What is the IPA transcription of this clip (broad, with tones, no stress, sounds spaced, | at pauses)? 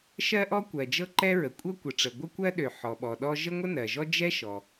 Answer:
ʃ ɜ˥ ʔ ɔ˥ kʷ ɜ˩ d͡ʒ ɤ˥ ǃ ɛ˥ ɹ ə˩ kʷʼ ɤ˥ kʷ ə˩ ʈ͡ʂ ə˩ ɡʷ ə˥ kʷ ɜ˥ ɗ ø˩ ħ ɔ˩ ɓ ɔ˩ ɗ ɔ˥ ʒ ə˥ ŋʷ ə˥ n ɜ˩ ʒ ɔ˥ d͡ʒ ɛ˥ ʃ ɔ˩